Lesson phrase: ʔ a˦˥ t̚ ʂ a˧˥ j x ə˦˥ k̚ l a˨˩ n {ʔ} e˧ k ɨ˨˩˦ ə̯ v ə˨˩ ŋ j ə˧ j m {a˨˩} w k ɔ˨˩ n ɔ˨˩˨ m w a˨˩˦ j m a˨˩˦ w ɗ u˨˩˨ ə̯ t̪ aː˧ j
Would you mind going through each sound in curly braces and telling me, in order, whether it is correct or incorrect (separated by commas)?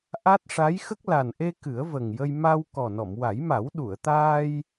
correct, incorrect